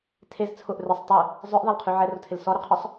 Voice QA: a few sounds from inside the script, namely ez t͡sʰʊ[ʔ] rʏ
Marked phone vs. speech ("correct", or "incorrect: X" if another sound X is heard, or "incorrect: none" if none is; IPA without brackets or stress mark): correct